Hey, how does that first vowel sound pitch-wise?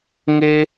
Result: low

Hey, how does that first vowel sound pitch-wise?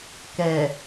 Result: low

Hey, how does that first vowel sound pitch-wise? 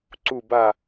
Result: falling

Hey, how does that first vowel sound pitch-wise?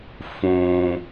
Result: low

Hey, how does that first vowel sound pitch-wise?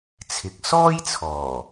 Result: rising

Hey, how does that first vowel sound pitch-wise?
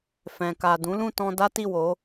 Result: low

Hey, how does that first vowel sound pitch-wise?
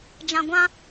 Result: low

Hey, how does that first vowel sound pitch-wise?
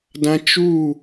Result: high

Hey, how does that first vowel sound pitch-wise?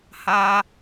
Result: high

